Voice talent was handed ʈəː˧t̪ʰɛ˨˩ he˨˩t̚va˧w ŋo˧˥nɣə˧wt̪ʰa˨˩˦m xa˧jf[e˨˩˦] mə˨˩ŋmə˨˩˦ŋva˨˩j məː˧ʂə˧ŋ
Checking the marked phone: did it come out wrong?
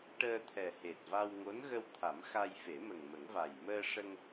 no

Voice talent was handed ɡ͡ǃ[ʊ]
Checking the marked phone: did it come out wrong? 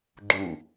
yes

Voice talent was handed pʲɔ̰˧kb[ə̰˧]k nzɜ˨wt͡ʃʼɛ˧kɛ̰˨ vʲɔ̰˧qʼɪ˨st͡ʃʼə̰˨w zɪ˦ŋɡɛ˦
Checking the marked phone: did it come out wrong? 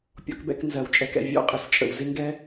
yes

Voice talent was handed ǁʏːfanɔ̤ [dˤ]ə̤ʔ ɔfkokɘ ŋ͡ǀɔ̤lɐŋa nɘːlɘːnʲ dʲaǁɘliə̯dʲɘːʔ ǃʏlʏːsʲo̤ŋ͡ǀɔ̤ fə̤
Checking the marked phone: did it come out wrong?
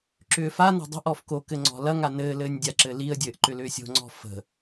no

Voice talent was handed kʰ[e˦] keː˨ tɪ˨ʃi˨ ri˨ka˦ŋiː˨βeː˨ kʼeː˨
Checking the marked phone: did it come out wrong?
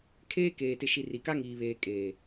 yes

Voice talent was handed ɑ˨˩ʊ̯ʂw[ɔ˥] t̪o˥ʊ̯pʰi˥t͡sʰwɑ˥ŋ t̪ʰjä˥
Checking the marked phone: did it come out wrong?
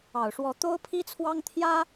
yes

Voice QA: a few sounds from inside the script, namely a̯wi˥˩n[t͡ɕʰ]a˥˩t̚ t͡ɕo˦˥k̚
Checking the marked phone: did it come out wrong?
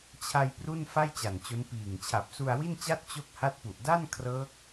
yes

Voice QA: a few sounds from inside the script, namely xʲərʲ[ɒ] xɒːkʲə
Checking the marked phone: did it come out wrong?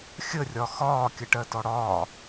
no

